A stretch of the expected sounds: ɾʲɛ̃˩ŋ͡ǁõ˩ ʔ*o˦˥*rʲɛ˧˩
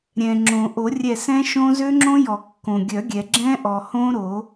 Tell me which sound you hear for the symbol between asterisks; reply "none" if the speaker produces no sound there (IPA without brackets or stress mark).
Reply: o˨˩˦